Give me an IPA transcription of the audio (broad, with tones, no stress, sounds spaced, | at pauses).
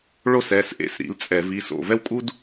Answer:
ɭ o˥ s ɛ˩˧˩ s ʔ ḛ˨˥ s ɾ ḭ˨˥ l t͡sʼ ɛ˧˩˧ v i˩˧˩ s o̰˧˩ v ɛ˥ w kʼ u˥ d